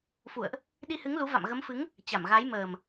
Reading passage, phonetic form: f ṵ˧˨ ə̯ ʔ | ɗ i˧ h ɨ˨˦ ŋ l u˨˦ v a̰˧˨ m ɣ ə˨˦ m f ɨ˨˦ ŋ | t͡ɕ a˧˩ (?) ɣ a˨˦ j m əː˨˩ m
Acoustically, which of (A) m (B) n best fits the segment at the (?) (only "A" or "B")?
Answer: A